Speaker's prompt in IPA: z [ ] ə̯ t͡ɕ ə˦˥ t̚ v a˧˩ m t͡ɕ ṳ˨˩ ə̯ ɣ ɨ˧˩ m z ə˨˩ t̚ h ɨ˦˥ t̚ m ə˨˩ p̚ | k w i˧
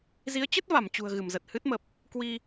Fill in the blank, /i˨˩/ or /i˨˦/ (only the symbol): i˨˦